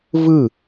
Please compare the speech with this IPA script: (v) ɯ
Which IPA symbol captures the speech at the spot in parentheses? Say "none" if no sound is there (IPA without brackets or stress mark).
v